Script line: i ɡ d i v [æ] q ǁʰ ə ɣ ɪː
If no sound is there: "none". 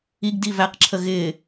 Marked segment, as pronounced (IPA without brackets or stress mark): æ